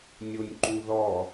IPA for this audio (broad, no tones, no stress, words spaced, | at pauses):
nʲonʲǃuðɔ